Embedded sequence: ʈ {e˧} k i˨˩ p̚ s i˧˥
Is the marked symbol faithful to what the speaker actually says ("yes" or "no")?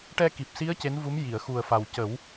no